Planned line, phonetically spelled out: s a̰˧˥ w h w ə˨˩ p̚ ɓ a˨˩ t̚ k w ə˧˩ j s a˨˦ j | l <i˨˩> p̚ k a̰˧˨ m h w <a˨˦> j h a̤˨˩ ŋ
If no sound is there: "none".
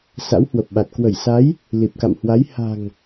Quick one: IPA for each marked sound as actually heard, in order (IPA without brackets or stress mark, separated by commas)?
i˨˩, a˨˦